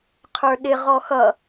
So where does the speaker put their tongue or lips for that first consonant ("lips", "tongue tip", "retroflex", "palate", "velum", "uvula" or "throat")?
uvula